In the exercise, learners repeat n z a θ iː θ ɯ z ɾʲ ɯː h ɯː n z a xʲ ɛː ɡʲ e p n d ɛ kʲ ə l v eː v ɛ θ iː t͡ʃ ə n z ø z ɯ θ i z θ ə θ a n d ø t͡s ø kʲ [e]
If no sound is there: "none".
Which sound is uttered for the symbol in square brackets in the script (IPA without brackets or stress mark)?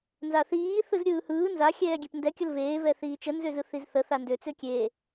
eː